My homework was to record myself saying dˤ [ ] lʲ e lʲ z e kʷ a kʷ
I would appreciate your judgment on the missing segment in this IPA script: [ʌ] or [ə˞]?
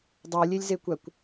ə˞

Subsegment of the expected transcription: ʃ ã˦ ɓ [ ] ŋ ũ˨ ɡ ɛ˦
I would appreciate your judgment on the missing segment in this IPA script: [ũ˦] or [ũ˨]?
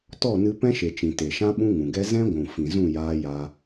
ũ˦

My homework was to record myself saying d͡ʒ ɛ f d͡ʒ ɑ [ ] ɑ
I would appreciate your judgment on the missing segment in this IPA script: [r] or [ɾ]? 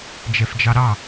ɾ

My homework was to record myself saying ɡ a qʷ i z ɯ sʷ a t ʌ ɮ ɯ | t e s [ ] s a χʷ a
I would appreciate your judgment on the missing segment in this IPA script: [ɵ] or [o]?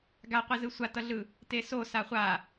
o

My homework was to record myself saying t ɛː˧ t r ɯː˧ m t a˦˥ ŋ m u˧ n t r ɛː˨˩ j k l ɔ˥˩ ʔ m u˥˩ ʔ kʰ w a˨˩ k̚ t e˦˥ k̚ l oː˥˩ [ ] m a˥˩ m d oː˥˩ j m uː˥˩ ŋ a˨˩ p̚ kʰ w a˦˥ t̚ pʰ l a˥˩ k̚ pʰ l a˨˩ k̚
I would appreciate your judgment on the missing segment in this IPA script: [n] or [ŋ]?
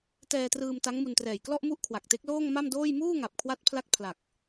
ŋ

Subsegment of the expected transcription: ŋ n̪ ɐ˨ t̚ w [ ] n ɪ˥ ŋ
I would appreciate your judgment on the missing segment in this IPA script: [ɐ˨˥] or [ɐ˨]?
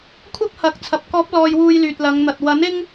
ɐ˨˥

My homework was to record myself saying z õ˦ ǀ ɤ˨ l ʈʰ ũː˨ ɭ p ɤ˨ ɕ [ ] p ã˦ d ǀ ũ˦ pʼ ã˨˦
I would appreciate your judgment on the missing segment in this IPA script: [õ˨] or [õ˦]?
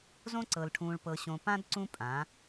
õ˨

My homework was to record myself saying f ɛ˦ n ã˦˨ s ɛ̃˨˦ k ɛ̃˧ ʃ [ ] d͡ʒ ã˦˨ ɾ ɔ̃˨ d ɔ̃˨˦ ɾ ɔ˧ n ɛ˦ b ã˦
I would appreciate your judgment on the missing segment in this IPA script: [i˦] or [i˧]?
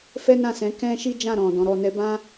i˦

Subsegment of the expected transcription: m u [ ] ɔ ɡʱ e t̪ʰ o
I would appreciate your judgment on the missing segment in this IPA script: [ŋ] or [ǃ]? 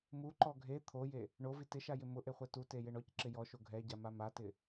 ǃ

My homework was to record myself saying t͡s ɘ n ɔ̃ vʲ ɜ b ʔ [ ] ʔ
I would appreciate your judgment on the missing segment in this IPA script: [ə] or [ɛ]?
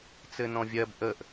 ə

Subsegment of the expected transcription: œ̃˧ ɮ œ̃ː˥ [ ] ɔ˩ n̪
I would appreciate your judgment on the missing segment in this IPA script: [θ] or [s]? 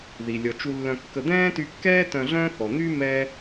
θ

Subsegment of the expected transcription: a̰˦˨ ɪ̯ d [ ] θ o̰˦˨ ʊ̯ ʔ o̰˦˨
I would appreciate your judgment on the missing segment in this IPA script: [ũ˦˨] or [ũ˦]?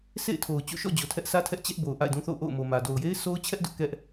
ũ˦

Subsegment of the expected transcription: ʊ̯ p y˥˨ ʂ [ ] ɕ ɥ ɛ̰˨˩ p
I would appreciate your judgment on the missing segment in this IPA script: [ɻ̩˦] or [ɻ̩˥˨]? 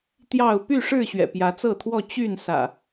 ɻ̩˥˨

